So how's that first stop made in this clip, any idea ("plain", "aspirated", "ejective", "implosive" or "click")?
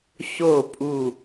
ejective